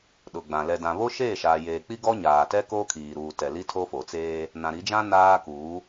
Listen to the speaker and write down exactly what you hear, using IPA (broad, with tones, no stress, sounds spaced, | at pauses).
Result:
ɗ ʊ˨ ɡ͡b ã˨ l ɛ˨ d ã˨ β o˦ ʃ eː˦˨ ʃ aː˨ j eː˨ k͡p i˦ ɡ ɔ˦ ɲ aː˨ t ɛ˦ k o˦ kʰ iː˨ ɾ uː˨ t ɛ˨ l i˦ tʰ o˦ f o˨ t͡s eː˦ | n ã˨ ɾ i˨˦ d͡ʒ ã˦ n aː˦ k uː˨˦